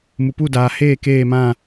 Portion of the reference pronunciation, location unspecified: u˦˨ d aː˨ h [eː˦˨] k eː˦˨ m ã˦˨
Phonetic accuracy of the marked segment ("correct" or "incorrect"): correct